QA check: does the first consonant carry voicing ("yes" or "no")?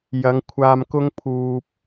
yes